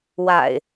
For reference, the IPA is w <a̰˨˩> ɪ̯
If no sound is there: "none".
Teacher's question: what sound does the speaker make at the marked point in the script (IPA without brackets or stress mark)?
a̰˨˩